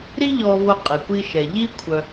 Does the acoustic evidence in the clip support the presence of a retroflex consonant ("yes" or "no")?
no